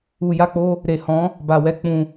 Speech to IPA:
u˨ja˧k͡po˧ | ɾe˨hɔ̃˨˦ | ba˨wɛ˨˦ k͡pũ˧

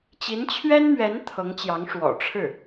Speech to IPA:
t͡ɕi˧˥nt͡ɕʰɥɛ˥nmɥɛ˧˥n t̪ʰɤ˧˥ŋt͡ɕjɑ˧˥ŋ ʂwɔ̰˨˩ʈ͡ʂʰɻ̩˥˩

